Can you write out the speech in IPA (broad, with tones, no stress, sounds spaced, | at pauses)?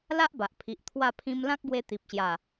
l a˦ ʔ b a˨ ʔ pʰ i˨ ʔ t̪ʰ w a˥˧ pʰ ĩ˦ m l ã˦ k̚ ɡ w e˧ t̪ i˨ p̚ ɕ j a˨˩